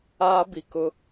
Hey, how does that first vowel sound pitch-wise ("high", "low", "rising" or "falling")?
high